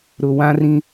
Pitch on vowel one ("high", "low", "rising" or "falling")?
low